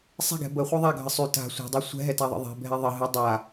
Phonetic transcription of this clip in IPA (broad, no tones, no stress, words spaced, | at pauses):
sˤɛ̤ɡɛ̤ bəχʷɨ ðˤaɡʱə sˤy ta̤ sʷɛ̤dˤɛ sʷɛ̤ɦɛtaðˤə̰ ðˤɛ̤bʱɛ ðˤə ɦɨ dˤa